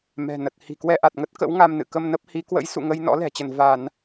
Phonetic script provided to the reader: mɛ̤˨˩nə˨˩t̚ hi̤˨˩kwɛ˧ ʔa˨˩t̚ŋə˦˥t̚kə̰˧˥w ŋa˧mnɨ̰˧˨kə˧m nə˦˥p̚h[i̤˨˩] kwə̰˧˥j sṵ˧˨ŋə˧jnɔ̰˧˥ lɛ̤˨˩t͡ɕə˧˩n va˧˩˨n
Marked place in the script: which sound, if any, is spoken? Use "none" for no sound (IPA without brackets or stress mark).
i˨˦